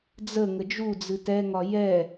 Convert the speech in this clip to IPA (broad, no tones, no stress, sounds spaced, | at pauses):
d͡z ə ŋ ə d͡ʒ u d͡z ɨ t ɛ ŋ ɒ j ɛ